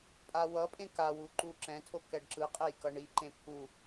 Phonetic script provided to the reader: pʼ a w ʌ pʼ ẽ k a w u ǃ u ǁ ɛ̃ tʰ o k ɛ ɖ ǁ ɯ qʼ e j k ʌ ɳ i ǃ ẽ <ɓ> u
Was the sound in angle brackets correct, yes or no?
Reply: no